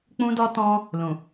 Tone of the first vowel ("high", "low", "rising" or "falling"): high